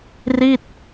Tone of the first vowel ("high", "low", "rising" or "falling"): falling